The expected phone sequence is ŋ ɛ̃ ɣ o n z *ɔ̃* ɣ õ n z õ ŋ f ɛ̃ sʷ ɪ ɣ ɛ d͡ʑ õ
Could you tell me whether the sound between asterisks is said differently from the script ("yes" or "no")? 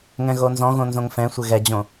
no